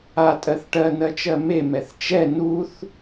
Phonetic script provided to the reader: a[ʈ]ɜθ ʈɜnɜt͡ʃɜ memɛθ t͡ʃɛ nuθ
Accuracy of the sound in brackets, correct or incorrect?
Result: incorrect